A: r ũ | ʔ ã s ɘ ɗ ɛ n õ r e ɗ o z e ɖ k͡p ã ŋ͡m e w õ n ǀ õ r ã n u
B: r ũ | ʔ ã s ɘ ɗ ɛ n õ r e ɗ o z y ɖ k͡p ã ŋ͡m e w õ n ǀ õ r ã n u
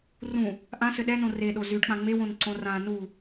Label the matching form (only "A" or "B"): B